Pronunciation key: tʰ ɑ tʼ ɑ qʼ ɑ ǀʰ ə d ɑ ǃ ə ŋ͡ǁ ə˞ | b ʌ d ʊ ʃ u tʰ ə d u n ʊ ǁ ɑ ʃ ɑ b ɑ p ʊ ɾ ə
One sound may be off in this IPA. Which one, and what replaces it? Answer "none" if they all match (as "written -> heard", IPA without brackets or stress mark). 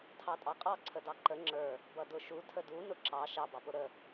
none